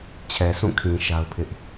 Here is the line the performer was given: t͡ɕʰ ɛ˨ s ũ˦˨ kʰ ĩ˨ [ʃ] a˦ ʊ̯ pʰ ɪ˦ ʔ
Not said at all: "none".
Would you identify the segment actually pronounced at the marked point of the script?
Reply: ʃ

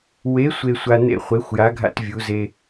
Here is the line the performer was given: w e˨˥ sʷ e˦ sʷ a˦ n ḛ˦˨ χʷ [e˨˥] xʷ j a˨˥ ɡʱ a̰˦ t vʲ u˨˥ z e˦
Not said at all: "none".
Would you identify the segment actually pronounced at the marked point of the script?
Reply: e˨˥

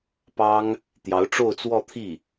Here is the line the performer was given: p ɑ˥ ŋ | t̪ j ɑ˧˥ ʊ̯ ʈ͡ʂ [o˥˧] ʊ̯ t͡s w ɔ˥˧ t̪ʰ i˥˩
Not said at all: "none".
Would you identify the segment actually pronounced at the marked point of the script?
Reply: o˥˧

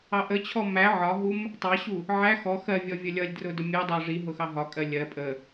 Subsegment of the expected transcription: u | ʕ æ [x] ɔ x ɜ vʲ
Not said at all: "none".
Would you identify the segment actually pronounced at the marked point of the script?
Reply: x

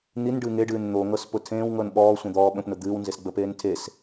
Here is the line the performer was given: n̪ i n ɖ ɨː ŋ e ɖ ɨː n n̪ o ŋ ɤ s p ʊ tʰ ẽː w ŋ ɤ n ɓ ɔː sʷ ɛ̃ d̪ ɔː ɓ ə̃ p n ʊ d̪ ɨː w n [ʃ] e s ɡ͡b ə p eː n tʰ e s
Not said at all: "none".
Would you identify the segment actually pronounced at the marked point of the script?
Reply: z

